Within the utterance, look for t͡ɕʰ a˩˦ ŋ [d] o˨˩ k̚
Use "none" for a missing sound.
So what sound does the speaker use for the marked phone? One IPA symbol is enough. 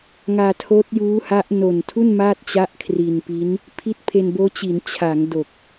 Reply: d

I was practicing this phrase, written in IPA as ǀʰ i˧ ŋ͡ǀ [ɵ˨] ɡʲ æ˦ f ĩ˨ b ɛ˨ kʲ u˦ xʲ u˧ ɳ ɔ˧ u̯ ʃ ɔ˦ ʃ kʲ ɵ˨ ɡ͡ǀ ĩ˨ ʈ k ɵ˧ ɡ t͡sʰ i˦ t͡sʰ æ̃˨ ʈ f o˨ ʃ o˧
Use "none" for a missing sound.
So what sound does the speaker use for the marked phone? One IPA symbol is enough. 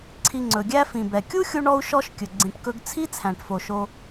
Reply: ɵ˨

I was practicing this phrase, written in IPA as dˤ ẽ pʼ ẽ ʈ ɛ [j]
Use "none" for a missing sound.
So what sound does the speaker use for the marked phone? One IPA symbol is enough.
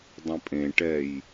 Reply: j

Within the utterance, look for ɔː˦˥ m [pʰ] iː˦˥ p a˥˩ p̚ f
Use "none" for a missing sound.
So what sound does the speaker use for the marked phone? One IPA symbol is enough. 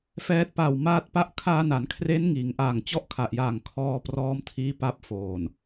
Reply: tʰ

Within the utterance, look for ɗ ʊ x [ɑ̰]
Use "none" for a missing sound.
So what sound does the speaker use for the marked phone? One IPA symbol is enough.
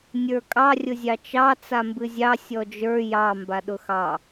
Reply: ɑ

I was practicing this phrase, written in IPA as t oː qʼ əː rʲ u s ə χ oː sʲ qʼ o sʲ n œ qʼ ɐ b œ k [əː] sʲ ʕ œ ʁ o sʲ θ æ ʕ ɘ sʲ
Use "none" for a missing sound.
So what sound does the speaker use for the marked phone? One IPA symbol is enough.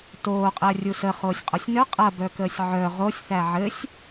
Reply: əː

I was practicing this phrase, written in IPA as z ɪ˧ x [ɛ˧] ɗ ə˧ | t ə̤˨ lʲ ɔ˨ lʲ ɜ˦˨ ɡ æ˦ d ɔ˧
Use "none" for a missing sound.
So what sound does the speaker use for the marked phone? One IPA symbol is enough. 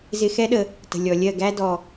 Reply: ɛ˦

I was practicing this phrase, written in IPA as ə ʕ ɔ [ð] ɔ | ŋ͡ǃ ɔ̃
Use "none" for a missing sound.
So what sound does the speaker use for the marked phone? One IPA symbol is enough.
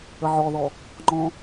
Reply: ð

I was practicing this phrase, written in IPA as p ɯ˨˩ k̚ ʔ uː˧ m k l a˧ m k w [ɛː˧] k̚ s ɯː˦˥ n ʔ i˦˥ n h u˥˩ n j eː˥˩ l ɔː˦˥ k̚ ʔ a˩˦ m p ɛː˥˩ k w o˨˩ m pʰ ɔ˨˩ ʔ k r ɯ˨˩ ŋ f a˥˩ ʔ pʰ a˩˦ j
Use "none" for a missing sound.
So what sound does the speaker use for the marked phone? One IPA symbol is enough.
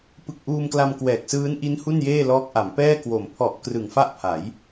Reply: ɛː˨˩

